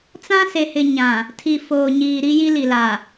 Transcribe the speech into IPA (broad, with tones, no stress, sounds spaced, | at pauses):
t͡s ã˦ s e˨ h ɪ˨ ɲ ã˨ | tʰ i˨ f oː˨ ɲ iː˨ ɾ i˦ j i˦ l i˨ l a˨